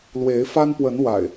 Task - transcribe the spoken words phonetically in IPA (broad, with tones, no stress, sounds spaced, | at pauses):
l w e˨˦ ɪ̯ f a˦ n p w ə˨˦ n w a̰˨˩ ɪ̯